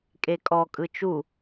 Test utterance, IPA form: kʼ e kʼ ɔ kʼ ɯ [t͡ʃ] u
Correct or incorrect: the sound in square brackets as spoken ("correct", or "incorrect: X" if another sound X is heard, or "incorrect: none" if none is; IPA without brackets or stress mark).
correct